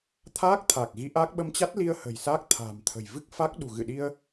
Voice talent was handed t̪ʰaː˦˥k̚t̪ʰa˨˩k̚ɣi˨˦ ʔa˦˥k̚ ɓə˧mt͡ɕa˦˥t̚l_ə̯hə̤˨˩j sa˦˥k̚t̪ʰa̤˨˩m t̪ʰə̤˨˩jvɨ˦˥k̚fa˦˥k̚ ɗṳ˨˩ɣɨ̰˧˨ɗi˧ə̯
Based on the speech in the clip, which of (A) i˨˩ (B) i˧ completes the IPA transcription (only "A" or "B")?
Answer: B